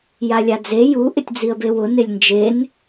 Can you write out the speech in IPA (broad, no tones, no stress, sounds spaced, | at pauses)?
j a lʲ a d͡z e j u ʔ ɪ tʲ d͡z i ə̯ b e w ʊ n ɪ lʲ n d͡ʒ e n